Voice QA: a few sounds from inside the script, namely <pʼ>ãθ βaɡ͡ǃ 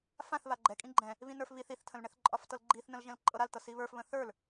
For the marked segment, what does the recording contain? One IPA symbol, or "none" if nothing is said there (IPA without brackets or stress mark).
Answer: f